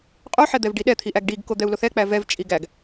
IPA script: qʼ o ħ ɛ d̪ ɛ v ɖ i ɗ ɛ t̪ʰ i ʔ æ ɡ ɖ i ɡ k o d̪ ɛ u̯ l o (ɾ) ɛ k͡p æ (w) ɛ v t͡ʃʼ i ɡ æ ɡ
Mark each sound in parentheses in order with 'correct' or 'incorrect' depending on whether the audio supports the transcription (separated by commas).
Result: incorrect, incorrect